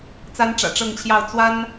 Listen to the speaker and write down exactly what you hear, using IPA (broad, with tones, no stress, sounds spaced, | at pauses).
t͡s a˥ n ʈ͡ʂ ä̰˨˩ ʈ͡ʂ ɤ˥˧ ŋ t͡ɕʰ j ɑ˥˩ ʊ̯ t͡s w a˥ n